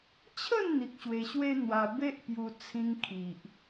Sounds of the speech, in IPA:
t͡ɕʰə˥˧nn̪i˨k̚ ɕwe˧ɕwe˦n̪wa˧ be˦ʔpju˧ t͡sʰĩ˧ŋkʰi˨ʔ

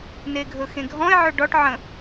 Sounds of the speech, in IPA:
neɡʱɵxẽɡʱɔ̃ɪ̯ ʕɵɖɔʈ ʕə̃

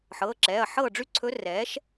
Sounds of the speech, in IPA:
ħɤː˩˧˩ǁɛː˩˧˩ɐ̯ħɤː˥˨ ɖ͡ʐy˥˨ ǀʰɵ˧˥rɛː˩˥ʃ

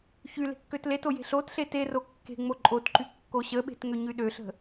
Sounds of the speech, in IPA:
çy le̤kːøtleto je̤ɬotɬe tero kːe̤ ŋ͡moǃʼotǃy kːoɕəɓe̤t ŋøɲyɗøɬə̤

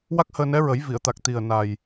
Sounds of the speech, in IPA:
wa˦˥k̚həː˧nɛ˧˥ɹə˨˩˦j vi˨˩˨ə̯t̪a˨˩k̚ t̪i˨˩ə̯ na˨˩j

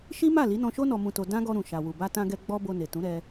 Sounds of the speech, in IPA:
ʃi˦ ma˦˨li˨˦nɔ̃˧ʃo˦ nɔ˧mũ˧to˧ dã˦ɡɔ˧ ɾũ˨ ʃa˨wu˨ ba˧tã˧ɡɛ˧ ɡ͡bɔ˧ bo˧ne˨tũ˨˦ɾɛ˧

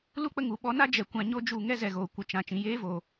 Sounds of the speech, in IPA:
lu˦k͡pə˧ ŋu˨ɓɔ˧na˦ d͡ʒɛ˨ kʷã˧ ɲo˦d͡ʒu˦˨ ŋɛ˦zɛ˨ɣoː˨kʷɨ˨ t͡ʃã˨ t͡ʃĩ˨jeː˦voː˨

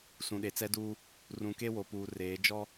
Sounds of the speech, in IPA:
sũ˨ɗe˨t͡sɛ˦duː˦ | rũ˨ke˦wo˨ puː˨reː˨˦ d͡ʒɔ˦

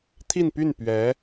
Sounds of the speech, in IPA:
t̪ʰi˥˧npy˥˩n pɥɛ˧˥

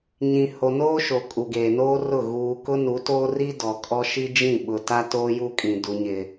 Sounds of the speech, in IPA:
ɲĩ˨ho˨noː˦ʃo˨ kʼu˨ɡeː˨noː˦rʊ˦˨ ɣuː˨ kʊ˦nu˨˦toː˦ri˦ dɔ˨kʼɔ˦ ʃi˦d͡ʒĩ˦˨ɓʊ˨ ta˦toː˦ju˦kʼĩ˨ du˨ɲɪ˨

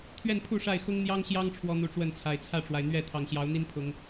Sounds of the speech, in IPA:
t̪ʰɥɛ˥˨npʰu˥˨ʂa˥˨ɪ̯ xʊ˦ŋn̪jɑ˦ŋɕjɑ˦ŋ ʈ͡ʂʰwɔ˦n̪u˨˦ʈ͡ʂwə˥˨nt͡sʰa˨˩ɪ̯ t͡sʰä˥˨ʈ͡ʂwa˩ɪ̯ n̪ɥɛ˥˨ t̪ʰɑ˨˩ŋɕjɑ˨˦ʊ̯n̪i˦n pʰʊ˨˦ŋ

